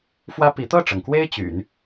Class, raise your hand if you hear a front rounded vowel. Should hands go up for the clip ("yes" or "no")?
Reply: yes